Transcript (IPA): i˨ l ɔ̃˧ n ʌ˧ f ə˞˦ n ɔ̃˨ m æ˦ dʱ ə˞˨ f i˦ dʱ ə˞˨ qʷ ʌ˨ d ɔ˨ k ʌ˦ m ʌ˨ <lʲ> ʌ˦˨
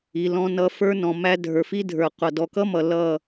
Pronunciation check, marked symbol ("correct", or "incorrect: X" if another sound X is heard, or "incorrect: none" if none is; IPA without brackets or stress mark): incorrect: l